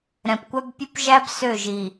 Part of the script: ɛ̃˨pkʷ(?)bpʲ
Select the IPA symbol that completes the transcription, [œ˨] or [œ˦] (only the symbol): œ˦